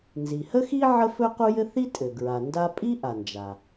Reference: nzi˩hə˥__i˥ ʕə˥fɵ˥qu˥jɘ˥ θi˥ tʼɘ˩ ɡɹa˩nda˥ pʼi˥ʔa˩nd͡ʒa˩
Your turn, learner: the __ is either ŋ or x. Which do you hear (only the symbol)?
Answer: x